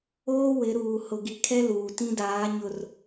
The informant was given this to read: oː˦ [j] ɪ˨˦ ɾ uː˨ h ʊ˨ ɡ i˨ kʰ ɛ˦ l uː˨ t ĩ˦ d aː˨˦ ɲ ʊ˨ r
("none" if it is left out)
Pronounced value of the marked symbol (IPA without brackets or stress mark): w